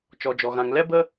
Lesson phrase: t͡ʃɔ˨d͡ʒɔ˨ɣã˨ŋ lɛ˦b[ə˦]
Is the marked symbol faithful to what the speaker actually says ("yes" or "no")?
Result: yes